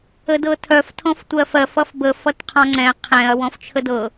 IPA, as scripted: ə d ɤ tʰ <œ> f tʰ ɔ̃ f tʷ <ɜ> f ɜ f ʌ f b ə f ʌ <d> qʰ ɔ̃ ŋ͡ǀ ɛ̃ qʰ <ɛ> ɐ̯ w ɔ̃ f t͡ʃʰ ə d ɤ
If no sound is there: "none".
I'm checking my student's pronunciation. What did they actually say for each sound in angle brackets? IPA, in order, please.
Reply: œ, ɜ, t, ɛ̃

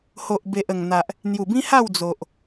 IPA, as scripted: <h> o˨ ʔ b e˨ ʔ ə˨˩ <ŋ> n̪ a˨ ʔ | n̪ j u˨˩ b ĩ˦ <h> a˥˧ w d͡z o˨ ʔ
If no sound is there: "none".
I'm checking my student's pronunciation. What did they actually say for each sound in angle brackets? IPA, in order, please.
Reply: h, ŋ, h

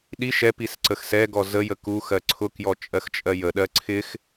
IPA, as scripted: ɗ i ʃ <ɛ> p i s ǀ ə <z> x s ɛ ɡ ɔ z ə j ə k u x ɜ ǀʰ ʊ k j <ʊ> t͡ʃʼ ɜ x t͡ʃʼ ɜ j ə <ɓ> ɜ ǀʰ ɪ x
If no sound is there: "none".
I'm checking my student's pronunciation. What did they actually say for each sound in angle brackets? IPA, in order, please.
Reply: ɛ, none, ɔ, ɗ

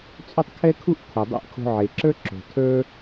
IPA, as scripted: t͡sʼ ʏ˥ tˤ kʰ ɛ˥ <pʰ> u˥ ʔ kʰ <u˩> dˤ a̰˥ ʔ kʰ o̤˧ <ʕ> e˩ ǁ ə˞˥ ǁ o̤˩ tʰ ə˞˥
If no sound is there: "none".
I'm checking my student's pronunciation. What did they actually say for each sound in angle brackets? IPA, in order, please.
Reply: kʰ, u˩, ʕ

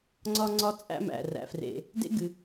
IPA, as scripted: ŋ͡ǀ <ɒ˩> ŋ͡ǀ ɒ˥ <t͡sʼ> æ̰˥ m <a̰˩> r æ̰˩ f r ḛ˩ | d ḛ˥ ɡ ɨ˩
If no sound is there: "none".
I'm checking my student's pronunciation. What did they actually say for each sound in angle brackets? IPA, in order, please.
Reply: ɒ˥, t͡sʼ, æ̰˩

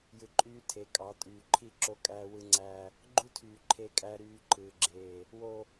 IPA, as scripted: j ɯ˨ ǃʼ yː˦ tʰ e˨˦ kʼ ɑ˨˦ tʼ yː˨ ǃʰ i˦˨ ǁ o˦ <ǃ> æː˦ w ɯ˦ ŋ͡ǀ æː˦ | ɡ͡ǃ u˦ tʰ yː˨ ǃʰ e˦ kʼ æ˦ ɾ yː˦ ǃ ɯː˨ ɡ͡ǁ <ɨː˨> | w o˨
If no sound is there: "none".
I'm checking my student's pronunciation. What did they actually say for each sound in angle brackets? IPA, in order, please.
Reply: kʼ, eː˨

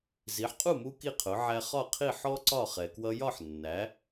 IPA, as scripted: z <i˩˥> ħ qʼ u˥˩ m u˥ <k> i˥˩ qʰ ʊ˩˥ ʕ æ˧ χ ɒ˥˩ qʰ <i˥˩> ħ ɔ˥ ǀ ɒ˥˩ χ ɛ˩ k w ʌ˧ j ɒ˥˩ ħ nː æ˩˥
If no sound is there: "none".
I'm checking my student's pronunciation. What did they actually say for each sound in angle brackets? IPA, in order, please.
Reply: i˩˥, k, i˥˩

